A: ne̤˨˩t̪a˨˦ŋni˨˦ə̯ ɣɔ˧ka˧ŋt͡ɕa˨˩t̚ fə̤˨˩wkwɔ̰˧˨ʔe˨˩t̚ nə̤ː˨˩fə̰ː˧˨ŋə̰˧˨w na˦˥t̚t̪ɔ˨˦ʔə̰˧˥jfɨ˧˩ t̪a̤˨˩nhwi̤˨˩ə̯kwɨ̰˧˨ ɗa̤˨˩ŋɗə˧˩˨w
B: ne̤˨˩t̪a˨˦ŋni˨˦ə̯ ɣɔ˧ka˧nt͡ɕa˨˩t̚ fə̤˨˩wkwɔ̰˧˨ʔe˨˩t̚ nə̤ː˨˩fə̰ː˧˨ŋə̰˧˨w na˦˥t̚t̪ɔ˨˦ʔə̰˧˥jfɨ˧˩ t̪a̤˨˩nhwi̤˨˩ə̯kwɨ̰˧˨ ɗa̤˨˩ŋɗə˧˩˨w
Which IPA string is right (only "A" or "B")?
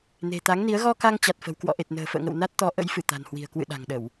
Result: A